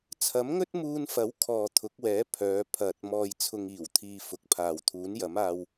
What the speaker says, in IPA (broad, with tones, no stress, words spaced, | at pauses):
t͡sʰɐ˨˥mŋɵ˥t̚muː˧nfɐ˨˥w kʰɔː˨ t̪ʰʊ˨˥k̚wɛː˨˥ pʰœː˨˧ pʰɐ˨t̚ mɔː˧jt͡sʰʊ˧ŋiː˨˩w t̪ʰiː˧fʊ˨˥k̚pʰaː˨w t̪ʰuː˨˥njɐ˨˥maː˧w